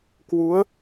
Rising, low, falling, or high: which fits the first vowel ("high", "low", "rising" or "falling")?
rising